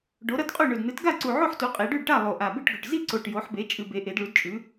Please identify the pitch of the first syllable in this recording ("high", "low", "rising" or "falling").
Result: rising